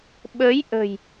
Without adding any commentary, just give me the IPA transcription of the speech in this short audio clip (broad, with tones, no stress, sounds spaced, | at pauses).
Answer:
ɓ ə˨˦ j ʔ ə̤˨˩ j